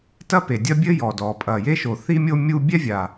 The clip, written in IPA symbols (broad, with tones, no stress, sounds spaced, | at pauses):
t ɐ˥ p e˩ dʲ ɐ˥ bʲ ɘ˥ j ɔ˩ d ɔ˩ pʼ ɐ˩ j e˥ ʃ o˩ θ i˥ mʲ o˥ mʲ u˥ bʲ ɛ˥ vʲ a˩